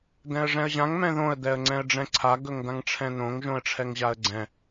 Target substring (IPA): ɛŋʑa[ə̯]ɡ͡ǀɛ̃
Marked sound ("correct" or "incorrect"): correct